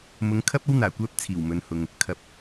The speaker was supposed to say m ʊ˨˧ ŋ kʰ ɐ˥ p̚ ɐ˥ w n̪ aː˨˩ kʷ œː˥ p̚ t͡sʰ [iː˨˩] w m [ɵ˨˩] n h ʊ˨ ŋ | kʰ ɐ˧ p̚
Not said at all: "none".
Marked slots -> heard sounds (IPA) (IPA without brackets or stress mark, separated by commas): iː˨˩, ɵ˨